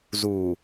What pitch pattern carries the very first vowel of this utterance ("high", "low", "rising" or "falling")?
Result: low